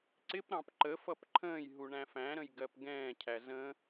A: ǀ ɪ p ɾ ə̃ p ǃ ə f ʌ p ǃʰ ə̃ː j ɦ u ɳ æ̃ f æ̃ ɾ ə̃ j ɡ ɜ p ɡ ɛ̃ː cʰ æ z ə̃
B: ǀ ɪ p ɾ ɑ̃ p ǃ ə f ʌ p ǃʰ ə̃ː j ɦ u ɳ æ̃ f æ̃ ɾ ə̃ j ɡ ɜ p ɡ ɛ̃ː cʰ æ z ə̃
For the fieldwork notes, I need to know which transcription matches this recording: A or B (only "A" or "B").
B